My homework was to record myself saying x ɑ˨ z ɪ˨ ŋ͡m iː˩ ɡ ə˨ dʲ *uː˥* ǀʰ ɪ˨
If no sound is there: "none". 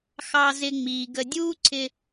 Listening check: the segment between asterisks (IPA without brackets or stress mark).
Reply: uː˥